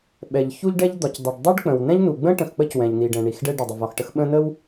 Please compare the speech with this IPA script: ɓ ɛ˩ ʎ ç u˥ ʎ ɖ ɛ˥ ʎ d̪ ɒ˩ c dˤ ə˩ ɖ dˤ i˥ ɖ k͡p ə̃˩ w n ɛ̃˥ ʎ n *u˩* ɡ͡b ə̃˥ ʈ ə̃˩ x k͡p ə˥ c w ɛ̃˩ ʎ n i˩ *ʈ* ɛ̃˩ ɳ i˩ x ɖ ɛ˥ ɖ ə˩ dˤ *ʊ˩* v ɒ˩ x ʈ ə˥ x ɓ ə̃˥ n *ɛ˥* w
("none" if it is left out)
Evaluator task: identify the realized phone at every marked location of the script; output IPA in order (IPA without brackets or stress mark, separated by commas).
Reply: u˩, ɖ, ə˩, ə˥